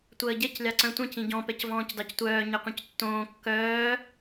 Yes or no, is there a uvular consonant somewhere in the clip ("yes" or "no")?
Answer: yes